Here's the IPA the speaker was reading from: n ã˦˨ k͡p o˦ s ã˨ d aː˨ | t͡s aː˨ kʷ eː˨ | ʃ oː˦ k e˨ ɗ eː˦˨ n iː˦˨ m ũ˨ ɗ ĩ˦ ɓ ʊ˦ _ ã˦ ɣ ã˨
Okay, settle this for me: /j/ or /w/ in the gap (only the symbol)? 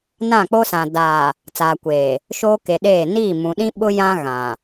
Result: j